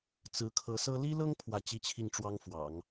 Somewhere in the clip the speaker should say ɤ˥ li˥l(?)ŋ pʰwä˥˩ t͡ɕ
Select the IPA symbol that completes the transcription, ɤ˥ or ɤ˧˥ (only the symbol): ɤ˥